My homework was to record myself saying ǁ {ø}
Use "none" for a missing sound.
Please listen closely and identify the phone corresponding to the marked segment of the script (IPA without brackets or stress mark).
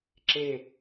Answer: e